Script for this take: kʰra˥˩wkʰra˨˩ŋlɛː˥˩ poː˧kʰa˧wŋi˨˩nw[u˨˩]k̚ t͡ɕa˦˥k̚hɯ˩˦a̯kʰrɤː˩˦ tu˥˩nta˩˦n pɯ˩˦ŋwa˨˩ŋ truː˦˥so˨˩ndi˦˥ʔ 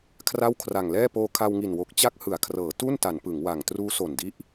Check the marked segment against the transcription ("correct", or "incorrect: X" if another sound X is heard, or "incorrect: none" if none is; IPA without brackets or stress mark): incorrect: o˨˩